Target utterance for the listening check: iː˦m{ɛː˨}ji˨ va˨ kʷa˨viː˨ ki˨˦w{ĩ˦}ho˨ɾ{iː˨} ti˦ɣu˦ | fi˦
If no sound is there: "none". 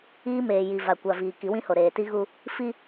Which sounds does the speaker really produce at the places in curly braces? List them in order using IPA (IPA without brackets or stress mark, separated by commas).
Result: eː˨, ĩ˦, eː˨